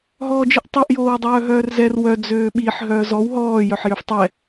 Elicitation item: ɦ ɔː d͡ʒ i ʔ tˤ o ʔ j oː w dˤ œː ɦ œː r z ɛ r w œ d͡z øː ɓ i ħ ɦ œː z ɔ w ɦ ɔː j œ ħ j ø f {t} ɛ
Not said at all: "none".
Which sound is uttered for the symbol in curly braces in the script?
tˤ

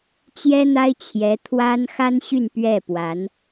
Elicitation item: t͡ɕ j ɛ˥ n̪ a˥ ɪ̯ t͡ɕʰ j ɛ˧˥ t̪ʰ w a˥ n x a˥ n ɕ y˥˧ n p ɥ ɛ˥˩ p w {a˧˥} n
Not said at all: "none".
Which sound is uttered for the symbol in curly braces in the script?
a˧˥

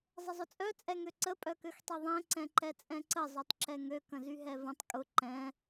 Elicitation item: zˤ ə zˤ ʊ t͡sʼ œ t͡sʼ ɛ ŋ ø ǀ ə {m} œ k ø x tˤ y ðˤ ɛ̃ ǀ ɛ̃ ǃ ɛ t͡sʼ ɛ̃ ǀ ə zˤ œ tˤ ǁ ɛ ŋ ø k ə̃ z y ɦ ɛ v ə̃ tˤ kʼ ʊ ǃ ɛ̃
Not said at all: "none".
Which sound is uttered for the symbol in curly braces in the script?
pʼ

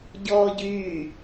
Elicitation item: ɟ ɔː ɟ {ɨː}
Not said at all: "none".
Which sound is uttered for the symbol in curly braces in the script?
yː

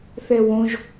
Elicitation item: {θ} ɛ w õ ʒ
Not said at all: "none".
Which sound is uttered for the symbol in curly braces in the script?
θ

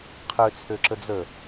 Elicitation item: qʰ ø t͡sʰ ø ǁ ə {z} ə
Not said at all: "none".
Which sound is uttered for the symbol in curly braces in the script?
d͡z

